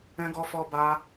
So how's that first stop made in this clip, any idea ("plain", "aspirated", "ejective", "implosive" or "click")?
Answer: plain